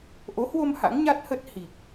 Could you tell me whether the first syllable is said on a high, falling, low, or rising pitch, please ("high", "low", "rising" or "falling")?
rising